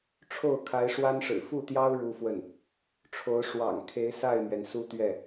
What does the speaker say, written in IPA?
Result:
ʈ͡ʂʰ o˥˩ ʊ̯ kʰ a˧˥ ɪ̯ ʂ w a˥ n ʂ ɻ̩˨˩ f u˥˩ t̪ j ɑ˥ ʊ̯ ɻ u˥ f w ə˥˩ n | ʈ͡ʂʰ o˧˥ ʊ̯ ʂ w ɑ̰˨˩ ŋ kʰ e˧˥ ɪ̯ s a˥˩ ɪ̯ m ɥ ɛ˩ n s u˥ t̪ ɥ ɛ˥˩

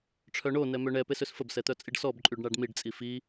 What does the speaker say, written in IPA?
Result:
ʈ͡ʂʰ œ ɳ o n ɛ m ø ɳ ɛ p e s ø s f ə b s ɛ t̪ œ t͡sʼ i ɖ s ɔ b ǃʼ y ɖ ɳ a ɖ m i ɖ t͡sʼ i f i

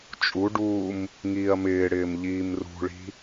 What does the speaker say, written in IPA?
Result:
t͡ʃʼ u ɖ uː m | ŋ iː ɐ̯ m ɪː ɽ ɪː m ʎ iː m r ṳ ɭ i̤

